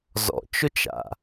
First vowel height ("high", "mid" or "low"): mid